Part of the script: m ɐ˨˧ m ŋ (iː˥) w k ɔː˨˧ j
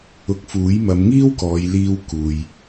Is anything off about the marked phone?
no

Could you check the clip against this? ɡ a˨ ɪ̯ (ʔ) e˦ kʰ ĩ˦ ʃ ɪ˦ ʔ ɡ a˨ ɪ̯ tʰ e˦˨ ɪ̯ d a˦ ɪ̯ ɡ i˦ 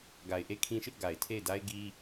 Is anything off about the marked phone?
no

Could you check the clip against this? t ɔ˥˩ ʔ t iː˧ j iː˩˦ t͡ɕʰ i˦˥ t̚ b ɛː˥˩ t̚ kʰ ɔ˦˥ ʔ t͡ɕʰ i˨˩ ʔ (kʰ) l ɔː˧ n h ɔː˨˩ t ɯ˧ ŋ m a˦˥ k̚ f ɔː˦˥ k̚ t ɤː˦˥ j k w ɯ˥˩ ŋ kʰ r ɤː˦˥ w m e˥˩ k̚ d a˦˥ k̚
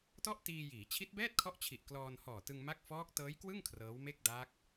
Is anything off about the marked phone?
yes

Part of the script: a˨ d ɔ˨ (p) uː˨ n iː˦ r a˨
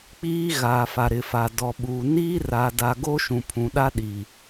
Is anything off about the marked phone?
yes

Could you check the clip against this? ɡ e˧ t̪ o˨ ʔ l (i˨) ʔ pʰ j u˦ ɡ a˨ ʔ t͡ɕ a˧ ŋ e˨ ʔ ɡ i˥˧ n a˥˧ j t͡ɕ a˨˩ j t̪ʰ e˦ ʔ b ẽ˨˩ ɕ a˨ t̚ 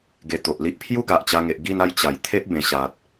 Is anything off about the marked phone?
yes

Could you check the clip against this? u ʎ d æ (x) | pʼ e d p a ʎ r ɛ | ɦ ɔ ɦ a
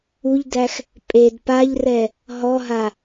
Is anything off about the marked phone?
no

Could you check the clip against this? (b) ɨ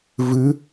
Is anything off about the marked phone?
yes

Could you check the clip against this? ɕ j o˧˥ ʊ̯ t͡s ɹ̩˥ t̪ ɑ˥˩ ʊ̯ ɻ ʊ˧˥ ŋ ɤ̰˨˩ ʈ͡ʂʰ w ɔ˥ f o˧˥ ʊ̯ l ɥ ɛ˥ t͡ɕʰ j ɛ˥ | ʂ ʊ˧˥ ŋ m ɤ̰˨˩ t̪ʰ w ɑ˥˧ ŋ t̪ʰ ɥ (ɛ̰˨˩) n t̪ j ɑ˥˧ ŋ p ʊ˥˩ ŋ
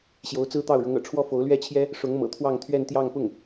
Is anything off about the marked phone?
yes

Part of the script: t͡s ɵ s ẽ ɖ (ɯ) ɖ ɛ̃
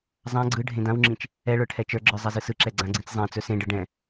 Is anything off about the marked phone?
no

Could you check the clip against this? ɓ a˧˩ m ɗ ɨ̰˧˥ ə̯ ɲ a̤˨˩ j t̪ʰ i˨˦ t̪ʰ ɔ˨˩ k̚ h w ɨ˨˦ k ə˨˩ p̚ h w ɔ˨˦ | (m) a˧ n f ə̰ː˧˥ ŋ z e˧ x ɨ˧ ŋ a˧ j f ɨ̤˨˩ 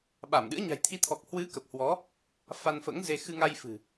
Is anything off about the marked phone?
yes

